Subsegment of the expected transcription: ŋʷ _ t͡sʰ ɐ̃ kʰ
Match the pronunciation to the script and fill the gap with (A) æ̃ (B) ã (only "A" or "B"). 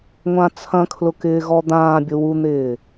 B